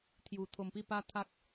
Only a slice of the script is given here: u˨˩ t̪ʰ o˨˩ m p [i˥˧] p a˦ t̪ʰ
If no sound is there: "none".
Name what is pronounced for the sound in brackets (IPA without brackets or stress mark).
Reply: i˥˧